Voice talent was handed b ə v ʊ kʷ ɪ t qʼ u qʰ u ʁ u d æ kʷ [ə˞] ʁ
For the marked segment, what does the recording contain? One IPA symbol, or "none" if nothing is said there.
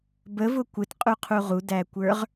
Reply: ə˞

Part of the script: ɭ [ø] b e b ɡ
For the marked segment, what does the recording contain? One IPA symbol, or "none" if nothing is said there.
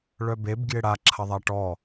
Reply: œ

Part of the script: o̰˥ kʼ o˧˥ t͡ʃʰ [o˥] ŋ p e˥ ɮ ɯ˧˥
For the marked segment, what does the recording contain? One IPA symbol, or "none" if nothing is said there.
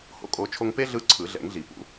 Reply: o˥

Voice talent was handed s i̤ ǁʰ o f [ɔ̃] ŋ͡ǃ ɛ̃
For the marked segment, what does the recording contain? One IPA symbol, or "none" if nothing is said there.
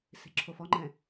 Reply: ɔ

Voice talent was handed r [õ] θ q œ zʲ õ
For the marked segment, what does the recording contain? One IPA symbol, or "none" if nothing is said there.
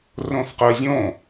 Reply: õ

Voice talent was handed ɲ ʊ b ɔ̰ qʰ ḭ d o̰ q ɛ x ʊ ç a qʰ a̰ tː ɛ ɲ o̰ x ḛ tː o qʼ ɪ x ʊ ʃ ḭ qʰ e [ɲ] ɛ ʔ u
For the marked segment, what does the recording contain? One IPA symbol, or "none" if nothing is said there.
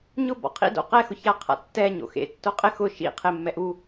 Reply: mː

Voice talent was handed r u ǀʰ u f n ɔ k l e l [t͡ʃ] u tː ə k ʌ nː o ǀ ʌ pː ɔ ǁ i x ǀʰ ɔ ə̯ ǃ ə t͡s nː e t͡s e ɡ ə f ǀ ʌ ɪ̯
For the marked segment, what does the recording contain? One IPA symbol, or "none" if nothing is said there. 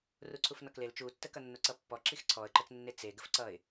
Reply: t͡ʃ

